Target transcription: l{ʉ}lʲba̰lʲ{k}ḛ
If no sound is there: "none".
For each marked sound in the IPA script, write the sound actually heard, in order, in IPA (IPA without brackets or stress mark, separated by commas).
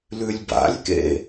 ʉ, k